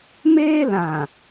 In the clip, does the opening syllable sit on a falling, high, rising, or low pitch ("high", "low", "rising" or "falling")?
high